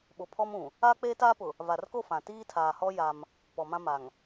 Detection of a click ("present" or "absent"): absent